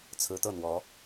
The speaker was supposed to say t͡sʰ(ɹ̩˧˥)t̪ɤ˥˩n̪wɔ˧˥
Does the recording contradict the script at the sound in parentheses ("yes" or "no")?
no